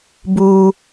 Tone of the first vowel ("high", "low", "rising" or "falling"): high